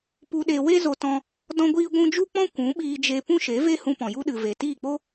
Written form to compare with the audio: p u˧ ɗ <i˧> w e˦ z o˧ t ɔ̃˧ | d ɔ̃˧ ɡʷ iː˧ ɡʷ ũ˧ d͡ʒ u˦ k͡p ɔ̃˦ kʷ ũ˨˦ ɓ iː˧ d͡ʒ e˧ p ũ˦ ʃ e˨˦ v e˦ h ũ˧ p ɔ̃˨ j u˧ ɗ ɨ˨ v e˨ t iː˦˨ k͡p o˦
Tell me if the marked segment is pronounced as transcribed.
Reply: no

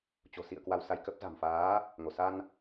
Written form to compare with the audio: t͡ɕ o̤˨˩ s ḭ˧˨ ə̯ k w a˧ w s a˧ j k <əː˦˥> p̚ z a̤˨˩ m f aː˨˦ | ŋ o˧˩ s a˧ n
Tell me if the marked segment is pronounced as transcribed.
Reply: no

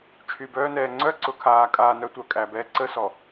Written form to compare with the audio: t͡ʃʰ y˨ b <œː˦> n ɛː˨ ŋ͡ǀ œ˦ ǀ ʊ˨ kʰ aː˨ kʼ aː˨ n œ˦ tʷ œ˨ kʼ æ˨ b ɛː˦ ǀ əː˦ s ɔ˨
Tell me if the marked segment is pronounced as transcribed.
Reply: yes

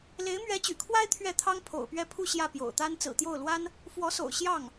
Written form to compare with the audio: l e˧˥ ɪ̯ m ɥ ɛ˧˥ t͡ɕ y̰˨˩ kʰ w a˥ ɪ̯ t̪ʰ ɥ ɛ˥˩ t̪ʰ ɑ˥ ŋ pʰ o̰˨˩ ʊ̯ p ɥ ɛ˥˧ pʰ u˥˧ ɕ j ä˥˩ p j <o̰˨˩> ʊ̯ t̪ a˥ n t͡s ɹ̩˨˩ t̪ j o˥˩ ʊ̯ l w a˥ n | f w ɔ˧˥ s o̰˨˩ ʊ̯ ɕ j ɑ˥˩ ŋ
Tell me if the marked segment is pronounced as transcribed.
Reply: yes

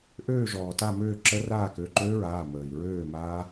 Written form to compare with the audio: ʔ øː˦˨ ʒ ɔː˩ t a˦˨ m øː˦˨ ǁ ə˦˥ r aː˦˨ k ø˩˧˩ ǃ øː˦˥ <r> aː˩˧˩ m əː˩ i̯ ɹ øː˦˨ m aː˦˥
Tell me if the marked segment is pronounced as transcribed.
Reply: no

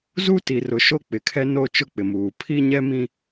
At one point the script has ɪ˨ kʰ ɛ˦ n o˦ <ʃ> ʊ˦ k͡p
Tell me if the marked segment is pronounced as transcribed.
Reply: no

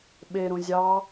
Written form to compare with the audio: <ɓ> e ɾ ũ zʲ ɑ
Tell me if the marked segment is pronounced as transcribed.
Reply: yes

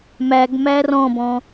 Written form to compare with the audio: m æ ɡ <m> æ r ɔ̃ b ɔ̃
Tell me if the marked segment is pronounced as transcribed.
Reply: yes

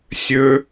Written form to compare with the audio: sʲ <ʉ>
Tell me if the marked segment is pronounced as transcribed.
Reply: no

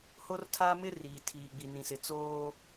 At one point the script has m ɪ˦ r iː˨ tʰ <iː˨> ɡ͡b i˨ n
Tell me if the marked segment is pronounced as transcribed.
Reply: yes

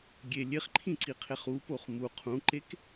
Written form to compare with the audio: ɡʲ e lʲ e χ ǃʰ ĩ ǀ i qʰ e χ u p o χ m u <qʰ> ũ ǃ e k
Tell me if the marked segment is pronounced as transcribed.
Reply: yes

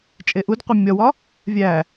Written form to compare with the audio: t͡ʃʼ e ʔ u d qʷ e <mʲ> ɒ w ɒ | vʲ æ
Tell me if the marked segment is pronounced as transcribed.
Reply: yes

